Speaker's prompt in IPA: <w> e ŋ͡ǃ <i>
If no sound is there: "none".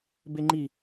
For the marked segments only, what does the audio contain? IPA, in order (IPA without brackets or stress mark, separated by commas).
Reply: b, i